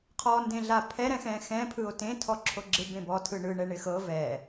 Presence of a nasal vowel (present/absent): present